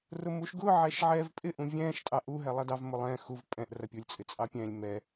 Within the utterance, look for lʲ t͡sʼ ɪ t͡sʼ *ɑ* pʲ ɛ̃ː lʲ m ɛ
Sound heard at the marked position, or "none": ɑ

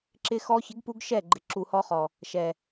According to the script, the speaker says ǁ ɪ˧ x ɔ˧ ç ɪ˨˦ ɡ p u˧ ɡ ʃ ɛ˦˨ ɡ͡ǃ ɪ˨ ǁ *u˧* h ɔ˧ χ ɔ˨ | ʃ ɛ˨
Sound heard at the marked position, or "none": u˨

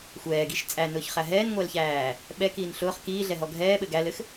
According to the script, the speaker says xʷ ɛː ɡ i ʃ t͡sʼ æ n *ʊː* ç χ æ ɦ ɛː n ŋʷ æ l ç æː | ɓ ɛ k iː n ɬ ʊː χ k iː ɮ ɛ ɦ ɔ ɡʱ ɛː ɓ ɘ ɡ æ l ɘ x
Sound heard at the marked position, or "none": ʊː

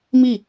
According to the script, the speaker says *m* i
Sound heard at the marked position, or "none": m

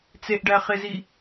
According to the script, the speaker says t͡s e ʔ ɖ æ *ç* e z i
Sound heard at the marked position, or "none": χ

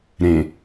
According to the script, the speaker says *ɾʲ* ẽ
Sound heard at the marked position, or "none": ɾ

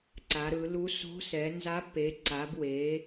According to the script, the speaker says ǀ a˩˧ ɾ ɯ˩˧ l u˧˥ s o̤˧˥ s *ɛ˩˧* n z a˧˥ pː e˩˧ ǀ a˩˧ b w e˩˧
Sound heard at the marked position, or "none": ɛ˩˧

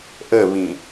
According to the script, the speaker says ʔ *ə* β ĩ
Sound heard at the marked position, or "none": ə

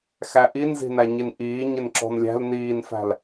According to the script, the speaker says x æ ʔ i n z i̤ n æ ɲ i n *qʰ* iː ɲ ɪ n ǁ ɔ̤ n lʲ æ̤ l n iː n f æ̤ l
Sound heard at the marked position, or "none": ʔ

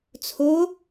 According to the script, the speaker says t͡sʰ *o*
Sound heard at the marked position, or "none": o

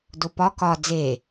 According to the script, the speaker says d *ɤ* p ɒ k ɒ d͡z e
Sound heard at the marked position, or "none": o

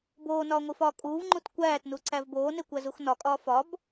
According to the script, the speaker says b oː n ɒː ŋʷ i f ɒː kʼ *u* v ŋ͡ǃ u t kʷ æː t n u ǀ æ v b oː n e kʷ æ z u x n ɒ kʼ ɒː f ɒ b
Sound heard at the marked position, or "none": uː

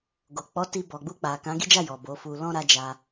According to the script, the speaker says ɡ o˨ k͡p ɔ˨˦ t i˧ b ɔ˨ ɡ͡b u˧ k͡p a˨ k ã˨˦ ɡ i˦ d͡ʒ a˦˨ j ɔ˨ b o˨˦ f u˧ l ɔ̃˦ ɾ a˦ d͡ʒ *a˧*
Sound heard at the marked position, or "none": a˧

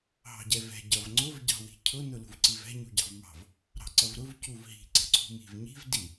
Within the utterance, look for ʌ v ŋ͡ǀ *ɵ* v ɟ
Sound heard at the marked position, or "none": ʊ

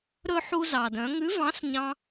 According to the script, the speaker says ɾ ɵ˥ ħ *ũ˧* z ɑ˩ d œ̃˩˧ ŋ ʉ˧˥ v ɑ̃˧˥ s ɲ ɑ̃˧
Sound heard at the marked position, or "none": u˧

